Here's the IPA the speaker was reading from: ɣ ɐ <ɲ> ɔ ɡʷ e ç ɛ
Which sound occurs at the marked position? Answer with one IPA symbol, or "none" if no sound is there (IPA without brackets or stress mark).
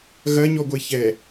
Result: ɲ